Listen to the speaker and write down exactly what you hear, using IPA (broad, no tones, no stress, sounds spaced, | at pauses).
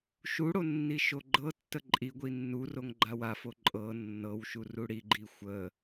ʃ u ɽ o nː i ʃ o ɡ͡ǃ ɤ tː ə ǃʼ i ɡʷ i nː u r o ŋ ɡ͡ǃ a w a f o ǃʼ ɤ nː ɤ w ʃ u r u ɽ i ɡ͡ǃ i xʷ ə